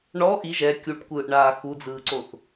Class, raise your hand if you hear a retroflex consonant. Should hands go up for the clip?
yes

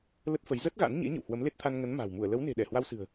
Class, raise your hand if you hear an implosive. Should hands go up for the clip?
yes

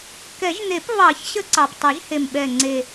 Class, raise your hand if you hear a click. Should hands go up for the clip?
yes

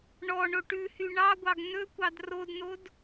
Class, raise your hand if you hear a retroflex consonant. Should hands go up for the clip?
yes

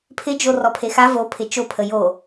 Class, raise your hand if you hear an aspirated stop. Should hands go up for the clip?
yes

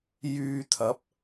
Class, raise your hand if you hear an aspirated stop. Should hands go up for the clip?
yes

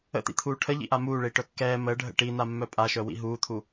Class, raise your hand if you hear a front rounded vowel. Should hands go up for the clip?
yes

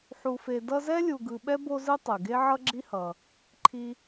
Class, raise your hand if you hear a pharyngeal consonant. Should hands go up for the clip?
yes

